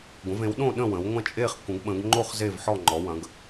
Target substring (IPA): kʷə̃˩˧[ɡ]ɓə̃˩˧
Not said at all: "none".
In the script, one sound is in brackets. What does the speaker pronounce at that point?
ɡ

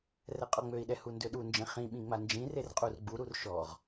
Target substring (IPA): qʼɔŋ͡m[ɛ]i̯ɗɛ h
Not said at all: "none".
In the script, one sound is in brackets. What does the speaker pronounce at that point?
ø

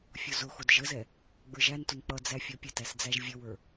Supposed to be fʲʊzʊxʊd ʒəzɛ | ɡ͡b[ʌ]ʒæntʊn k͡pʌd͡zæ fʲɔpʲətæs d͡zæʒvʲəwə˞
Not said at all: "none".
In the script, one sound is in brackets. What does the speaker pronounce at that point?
ə˞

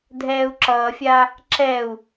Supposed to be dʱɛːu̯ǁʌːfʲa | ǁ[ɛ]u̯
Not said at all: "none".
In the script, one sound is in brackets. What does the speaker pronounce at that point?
ɛ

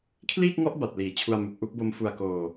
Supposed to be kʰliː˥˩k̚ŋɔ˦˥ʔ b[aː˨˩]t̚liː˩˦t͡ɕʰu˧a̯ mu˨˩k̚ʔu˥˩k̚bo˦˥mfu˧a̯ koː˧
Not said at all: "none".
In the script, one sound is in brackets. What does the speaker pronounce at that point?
a˨˩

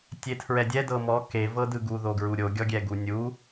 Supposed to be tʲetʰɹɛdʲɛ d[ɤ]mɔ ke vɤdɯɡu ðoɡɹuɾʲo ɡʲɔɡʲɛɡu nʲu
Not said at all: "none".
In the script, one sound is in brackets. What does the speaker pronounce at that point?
ɤ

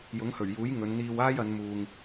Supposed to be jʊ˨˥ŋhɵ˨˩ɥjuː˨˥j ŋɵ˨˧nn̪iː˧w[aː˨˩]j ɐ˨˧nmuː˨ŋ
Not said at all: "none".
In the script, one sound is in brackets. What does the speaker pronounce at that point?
aː˥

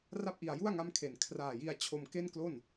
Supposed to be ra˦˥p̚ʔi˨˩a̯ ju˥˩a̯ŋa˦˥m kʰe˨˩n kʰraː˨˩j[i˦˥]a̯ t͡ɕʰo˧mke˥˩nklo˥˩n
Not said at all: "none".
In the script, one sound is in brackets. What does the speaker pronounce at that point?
i˧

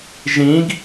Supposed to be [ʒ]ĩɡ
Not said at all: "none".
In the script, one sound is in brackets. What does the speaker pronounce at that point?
ʒ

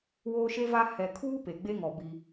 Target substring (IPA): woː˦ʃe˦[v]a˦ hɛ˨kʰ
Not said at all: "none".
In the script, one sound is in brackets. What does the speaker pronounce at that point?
v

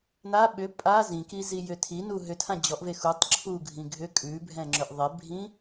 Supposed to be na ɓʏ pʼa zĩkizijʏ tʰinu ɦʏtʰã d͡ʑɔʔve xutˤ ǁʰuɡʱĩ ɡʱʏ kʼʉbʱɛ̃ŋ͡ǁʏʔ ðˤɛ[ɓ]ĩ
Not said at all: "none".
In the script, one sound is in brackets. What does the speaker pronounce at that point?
bʱ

